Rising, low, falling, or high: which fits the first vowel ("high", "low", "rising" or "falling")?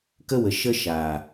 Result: high